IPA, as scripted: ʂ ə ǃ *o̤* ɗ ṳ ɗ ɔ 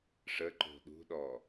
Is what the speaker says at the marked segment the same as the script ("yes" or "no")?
yes